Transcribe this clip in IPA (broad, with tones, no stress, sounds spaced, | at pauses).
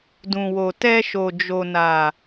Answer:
d ũ˨ w o˨ t ɛ˧ ʃ o˨ d͡ʒ o˨ n a˨